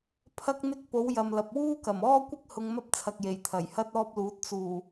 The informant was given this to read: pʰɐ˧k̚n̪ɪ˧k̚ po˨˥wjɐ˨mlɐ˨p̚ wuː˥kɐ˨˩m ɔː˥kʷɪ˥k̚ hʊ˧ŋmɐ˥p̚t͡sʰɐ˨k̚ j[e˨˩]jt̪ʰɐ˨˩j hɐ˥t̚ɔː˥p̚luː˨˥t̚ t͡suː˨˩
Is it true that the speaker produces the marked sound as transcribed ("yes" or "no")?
yes